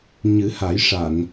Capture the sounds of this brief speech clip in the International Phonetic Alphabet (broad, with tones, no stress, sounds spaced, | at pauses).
ɲ ɨ˨˩˦ h a˨˩˦ j ʂ a˨˩˨ n